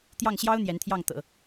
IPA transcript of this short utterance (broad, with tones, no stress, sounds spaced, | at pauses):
t̪ j ɑ˥˩ ŋ ɕ j ɑ˥ ʊ̯ n̪ j ɛ˧˥ n t̪ʰ j ɑ˥˩ ŋ t̪ ɤ̰˨˩˦